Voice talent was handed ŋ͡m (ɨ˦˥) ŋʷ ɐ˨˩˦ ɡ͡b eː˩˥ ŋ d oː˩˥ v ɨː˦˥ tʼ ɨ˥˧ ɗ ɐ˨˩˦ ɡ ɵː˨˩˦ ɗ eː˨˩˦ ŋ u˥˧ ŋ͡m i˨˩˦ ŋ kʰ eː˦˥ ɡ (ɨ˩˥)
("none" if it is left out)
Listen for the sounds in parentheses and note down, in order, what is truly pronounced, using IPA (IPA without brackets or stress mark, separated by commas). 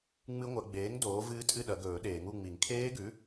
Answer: ɨ˦˥, ʉ˩˥